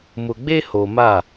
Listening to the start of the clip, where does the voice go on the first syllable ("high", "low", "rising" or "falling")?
low